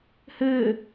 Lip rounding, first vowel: unrounded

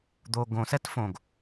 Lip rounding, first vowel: rounded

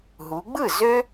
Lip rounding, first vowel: rounded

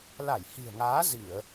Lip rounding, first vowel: unrounded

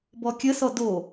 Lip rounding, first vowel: rounded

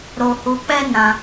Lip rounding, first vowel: rounded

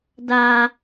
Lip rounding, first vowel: unrounded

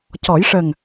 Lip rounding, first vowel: rounded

